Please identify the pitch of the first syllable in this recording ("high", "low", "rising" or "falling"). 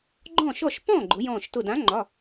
falling